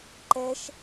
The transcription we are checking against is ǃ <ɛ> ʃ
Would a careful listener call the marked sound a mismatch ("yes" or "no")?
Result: no